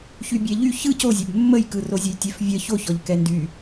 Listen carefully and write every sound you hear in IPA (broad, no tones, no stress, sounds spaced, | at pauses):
ç y bʲ ɛ ʎ y ç ɯ c o zʲ ɛ b mː ə j k ɯ r o zʲ ə j tʲ ɛ f vʲ ə ç o ç ɔ ʎ k ɛ n d y